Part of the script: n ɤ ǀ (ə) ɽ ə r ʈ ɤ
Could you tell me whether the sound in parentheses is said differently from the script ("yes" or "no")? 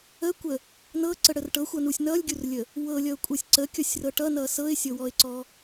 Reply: no